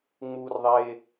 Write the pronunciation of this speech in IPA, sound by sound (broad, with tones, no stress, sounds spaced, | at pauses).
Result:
ŋ͡m uː˧ r ðˤ eː˧